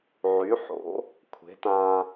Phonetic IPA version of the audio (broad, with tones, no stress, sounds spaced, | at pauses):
ʕ y˩˥ ħ o̰˩˥ | kʷʰ e̤˩˥ t ã˧